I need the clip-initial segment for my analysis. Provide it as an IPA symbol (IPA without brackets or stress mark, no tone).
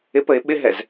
ɪ